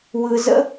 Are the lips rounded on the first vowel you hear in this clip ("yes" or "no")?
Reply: no